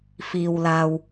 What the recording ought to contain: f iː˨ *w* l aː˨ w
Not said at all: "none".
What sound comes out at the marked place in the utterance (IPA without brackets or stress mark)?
w